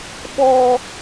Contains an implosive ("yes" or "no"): yes